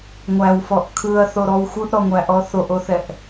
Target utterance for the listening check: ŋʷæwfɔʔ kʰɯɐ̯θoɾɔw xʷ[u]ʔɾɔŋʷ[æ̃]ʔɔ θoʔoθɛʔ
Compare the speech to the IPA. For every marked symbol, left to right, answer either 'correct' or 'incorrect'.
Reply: incorrect: ɯ, incorrect: æ

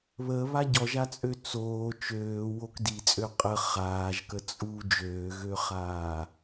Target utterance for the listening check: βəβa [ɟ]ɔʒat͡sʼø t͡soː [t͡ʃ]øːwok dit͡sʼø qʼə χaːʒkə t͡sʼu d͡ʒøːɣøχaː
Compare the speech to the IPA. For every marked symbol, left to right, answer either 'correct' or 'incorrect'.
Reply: correct, correct

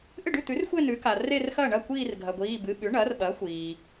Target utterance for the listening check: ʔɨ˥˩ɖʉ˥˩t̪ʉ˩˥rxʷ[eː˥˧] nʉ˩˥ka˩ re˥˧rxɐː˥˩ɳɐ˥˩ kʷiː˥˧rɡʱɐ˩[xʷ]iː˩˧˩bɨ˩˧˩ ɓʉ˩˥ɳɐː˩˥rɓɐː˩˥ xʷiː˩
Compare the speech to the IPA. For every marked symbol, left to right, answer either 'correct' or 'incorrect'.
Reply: incorrect: e˥˧, incorrect: ɡʷ

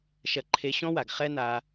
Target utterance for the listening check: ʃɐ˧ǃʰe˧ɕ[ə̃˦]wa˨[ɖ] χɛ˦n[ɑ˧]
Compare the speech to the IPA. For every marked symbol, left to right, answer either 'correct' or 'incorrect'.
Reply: incorrect: ɔ̃˦, incorrect: ɡ, incorrect: a˧

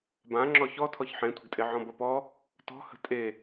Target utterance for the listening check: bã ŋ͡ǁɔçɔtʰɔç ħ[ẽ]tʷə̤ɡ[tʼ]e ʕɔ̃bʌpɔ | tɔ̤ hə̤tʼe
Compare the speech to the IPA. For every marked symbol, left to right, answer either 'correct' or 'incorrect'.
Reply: correct, correct

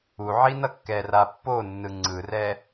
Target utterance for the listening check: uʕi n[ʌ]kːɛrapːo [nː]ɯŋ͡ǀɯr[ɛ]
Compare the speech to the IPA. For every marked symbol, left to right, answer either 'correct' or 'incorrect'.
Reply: correct, correct, correct

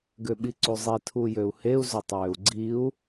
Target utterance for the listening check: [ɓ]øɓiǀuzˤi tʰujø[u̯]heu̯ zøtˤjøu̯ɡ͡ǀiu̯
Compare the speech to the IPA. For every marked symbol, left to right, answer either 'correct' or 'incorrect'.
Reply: incorrect: ɡ, correct

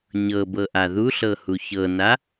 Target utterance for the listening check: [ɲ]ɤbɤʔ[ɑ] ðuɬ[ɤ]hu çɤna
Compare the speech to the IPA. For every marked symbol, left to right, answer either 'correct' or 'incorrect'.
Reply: correct, incorrect: a, correct

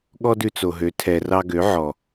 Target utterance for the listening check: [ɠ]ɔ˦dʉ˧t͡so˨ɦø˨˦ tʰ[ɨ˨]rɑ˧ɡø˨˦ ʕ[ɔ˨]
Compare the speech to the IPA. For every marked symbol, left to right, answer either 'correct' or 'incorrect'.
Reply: correct, incorrect: ɛ˨, correct

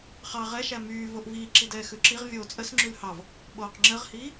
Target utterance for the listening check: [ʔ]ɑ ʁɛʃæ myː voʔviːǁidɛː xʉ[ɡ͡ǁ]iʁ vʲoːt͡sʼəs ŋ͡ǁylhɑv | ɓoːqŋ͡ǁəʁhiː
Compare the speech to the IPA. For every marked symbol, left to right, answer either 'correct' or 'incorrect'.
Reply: incorrect: χ, incorrect: ǁ

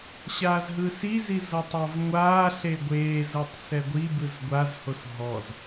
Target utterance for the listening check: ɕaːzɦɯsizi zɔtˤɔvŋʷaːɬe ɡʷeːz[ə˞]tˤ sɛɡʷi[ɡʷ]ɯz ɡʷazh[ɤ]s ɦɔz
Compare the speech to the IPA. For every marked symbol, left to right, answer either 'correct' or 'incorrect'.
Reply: incorrect: ɤ, incorrect: b, incorrect: o

